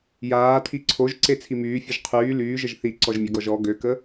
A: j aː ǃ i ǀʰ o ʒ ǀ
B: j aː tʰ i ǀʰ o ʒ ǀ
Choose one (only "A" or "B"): B